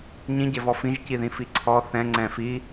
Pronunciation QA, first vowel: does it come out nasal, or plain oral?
nasal